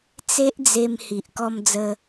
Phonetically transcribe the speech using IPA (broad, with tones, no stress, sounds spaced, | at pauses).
t͡s e˦ ʔ d͡z e˧ m h i˨ ʔ k ɔ˧ m d͡z ə˧